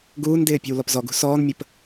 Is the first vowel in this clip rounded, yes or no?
yes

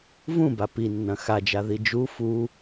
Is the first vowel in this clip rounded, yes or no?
yes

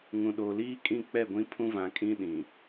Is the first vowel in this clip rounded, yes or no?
yes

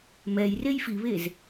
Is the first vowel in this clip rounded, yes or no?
no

